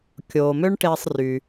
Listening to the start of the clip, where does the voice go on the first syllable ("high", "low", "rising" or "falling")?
low